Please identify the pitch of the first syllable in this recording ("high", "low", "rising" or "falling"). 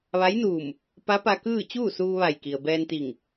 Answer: rising